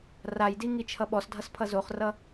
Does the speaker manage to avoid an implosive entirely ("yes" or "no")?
no